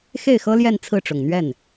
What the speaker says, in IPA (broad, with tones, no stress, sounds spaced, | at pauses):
x e˥˩ ɪ̯ x ɤ˥ l j ɛ˥˧ n t͡sʰ ɹ̩˥˩ ʈ͡ʂ ʊ˨˩ ŋ n̪ ɥ ɛ˥˩ n